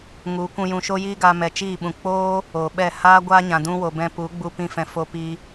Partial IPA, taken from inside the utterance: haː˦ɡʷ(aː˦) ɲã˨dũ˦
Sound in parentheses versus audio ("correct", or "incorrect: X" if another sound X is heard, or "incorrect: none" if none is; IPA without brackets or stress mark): correct